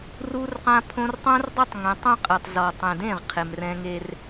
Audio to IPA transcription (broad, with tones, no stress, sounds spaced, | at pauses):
r u˦ r q ã˦ pʰ õ˦ r tˤ õ˦ r dˤ e˦ tˤ ŋ ɛ̃˨˦ tˤ ũ˦ qʼ e˨ tˤ z ɔ˨ tˤ ẽ˨ d ẽ˦˨ ʁ qʰ e˨ m r ɛ̃˦ ŋ e˦ r